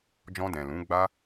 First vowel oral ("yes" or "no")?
no